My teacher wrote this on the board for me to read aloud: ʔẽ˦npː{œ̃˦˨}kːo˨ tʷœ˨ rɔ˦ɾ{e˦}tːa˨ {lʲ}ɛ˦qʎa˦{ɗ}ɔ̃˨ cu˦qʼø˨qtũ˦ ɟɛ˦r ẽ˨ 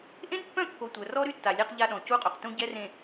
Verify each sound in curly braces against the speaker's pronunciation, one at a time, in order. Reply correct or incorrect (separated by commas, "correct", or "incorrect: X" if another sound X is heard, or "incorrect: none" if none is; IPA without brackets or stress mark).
correct, incorrect: y˦, correct, correct